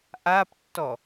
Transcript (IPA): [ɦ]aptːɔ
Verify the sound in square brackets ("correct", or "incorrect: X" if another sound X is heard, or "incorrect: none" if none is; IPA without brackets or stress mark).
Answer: incorrect: ʔ